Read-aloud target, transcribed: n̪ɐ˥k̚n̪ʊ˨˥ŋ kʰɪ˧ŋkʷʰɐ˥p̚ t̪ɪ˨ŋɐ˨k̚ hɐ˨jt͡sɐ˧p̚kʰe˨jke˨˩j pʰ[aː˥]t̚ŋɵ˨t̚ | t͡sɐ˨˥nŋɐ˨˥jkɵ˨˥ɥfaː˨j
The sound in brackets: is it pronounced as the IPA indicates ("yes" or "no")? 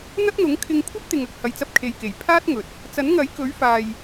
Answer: yes